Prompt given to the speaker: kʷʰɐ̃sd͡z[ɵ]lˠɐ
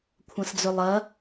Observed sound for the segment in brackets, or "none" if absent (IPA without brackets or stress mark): ɵ